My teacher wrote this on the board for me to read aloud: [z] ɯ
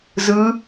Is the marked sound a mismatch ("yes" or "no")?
no